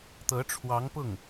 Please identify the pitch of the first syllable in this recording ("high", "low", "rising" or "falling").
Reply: rising